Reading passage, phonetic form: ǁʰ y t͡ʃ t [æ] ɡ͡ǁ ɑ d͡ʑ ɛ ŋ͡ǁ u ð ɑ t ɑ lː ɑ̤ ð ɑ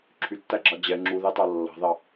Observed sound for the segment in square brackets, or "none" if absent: æ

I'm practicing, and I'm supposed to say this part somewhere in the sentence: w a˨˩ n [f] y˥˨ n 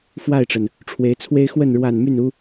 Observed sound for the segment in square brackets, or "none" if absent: m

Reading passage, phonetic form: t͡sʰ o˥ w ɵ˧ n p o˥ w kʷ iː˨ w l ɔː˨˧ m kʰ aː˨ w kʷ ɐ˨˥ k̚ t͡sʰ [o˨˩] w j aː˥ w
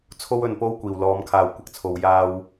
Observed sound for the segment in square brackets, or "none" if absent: o˨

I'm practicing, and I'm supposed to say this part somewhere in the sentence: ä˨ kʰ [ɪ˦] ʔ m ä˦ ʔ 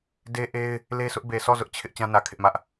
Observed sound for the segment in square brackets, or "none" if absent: ɪ˦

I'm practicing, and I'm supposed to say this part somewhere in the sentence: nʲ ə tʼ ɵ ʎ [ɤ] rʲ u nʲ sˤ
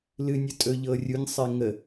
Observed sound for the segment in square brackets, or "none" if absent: ɤ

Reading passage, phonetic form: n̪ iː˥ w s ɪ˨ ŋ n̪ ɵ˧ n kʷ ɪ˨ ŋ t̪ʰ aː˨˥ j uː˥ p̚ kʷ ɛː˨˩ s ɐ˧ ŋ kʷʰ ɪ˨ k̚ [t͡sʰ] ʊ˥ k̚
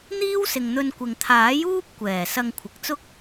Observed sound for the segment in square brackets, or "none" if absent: t͡s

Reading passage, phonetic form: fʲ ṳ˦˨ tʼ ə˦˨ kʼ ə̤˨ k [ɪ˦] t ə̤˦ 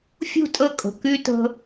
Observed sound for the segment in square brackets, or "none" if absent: y˦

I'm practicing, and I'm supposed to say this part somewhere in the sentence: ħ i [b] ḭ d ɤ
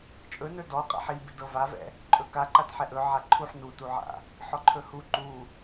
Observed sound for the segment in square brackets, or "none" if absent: b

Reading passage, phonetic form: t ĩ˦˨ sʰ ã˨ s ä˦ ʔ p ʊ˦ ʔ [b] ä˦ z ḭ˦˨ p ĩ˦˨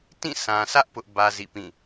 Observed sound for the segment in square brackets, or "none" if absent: b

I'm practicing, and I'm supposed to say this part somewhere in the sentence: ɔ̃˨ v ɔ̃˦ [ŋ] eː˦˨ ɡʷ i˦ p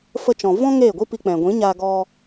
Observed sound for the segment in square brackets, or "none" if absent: ŋ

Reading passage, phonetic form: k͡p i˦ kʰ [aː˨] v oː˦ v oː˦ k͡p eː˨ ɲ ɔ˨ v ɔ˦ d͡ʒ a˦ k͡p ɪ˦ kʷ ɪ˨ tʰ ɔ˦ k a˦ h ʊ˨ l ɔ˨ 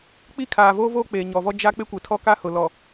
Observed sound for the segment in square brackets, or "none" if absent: aː˨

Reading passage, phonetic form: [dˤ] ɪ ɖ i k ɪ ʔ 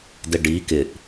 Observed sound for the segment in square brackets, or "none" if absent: d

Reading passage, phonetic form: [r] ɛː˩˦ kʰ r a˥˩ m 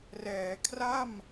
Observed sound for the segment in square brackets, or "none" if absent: r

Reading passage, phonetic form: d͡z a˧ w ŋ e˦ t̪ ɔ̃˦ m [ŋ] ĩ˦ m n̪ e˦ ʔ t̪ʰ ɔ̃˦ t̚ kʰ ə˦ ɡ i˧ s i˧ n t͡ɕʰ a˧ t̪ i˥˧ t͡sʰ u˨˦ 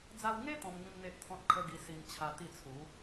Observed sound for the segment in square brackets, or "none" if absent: ŋ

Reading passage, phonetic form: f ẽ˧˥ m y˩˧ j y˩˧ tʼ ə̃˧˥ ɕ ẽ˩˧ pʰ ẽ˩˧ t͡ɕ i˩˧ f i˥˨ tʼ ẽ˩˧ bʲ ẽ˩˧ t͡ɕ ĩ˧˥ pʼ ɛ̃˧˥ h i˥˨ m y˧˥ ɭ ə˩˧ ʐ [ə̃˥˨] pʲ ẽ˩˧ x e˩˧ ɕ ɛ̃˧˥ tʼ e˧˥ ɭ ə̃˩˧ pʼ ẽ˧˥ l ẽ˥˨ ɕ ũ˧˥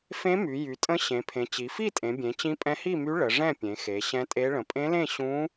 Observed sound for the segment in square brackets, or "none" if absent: ɛ̃˥˨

